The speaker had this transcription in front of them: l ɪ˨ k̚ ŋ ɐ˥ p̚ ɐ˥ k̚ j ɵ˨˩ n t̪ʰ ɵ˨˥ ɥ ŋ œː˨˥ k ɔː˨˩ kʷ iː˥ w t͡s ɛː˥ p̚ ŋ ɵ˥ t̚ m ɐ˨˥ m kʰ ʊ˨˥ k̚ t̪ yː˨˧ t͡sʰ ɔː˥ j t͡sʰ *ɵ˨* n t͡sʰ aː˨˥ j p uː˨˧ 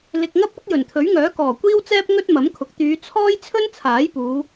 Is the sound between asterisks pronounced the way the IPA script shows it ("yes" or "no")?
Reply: no